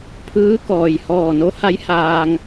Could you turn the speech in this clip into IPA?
pʰɯː˧˥kɔː˩j hɔː˧˩no˧˥ha˧˥j haː˧ŋ

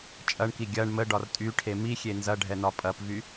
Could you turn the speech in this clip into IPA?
t͡ʃʼɐɳki ɡʲɐɳ məɖɒr tʼyʈʰe mixʲe nzɐɖʱɛnɒ pʼɐpvy

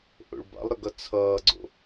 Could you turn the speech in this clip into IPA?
ʔo̰ɭba̰lˠɾəɡʌ t͡sʰʌːɡ͡ǀo̰

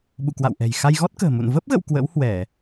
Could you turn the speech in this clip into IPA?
ɓṵ˧˨kwa̰˧˨wʔɛ̤˨˩j xa˧jɣɔ˦˥t̚kə̤ː˨˩ mṵ˧˨n və˦˥p̚ɣə̰˧˨w kwə̰˧˥whwɛ˧˩˨

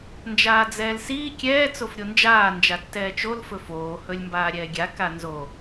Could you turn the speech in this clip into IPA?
nd͡ʒaːd͡zɛːlsiː kʲɛː t͡sofɾʲond͡ʒaː nd͡ʒatːɛːt͡ʃol fɵfoː hɵlʲmbaːɾʲɛːɡʲa kanzo

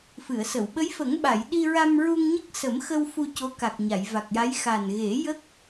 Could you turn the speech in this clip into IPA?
fɨ˨˩˨ə̯sə˨˩˨w ɓə˧˥jfə˨˩˦ŋɓa˨˩˨j ɗi˧ɹa˧mɹu˧ŋɲə˦˥k̚ sə˨˩˦mxə˧w fu˧co˧˥ ka˨˩k̚ɲa˨˩˨jva˨˩k̚ja˧˥j xa˨˩nɣe˨˩˦ jə˦˥k̚

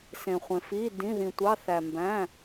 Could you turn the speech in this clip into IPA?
sẽ˩χʷẽ˩f i˩˧˩dĩ˩˧˩ðĩ˩tʷɑ˩˧˩ θæ˩mbæ̃˩˧˩

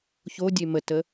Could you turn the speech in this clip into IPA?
çodʲe mətə

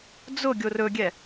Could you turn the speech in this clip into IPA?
d͡zʊ ɡʲorɵɡʲɛ

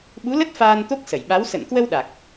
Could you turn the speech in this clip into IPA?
ɓu˨˦lə˦˥t̚ faː˧nt̪o˦˥k̚ sə˧˩jɓa˨˦w sə̰˧˨nkwə˧w ɗa˨˩k̚

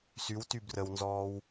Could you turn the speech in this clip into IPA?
sywty brəwnzɔːw

